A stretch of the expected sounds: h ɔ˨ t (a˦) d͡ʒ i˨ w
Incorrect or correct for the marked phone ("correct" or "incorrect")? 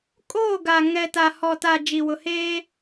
incorrect